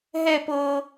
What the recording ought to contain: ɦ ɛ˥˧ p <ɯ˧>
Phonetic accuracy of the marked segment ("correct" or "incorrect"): incorrect